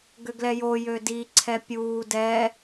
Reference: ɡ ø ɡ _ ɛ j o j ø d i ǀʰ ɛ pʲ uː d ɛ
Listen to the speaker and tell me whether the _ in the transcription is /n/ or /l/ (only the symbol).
l